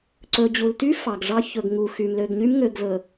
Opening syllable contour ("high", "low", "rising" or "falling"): low